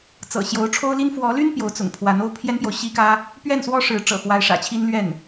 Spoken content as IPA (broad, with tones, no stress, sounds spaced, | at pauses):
t͡s ɤ̰˨˩ ɕ j o˧˥ ʊ̯ ʈ͡ʂʰ o˥ ʊ̯ l i˥ n f w ɔ˧˥ l y˥ n p j o˧˥ ʊ̯ t͡s ʊ̰˨˩ ŋ pʰ w a˧˥ n o˥ ʊ̯ pʰ j ɛ˥ n p j o˨ ʊ̯ ɕ i˥ k ä˥ | p ɥ ɛ˥˩ n s w ɔ˥ ʂ ɻ̩˧˥ ʈ͡ʂ ɤ̰˨˩ x w a˧˥ ɪ̯ ʂ ä̰˨˩ t͡ɕʰ i˥ n l ɥ ɛ˥˩ n